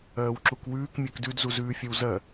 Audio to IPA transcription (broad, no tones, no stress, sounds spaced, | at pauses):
ɜː w ǁ u k w ʉː k mʲ ɜ k d ʉ d z u z ʉː fʲ ʌ w z ɜ